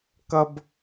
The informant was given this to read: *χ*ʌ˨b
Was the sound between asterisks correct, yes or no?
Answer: no